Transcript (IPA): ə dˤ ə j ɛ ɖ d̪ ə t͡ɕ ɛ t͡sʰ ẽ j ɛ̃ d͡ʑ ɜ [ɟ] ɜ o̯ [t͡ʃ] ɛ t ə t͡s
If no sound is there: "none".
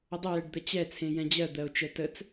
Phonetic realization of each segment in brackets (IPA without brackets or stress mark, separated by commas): d̪, t͡ʃ